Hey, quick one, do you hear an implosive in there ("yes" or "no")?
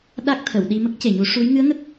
yes